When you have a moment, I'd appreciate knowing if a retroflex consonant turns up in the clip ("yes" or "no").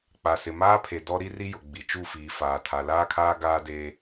no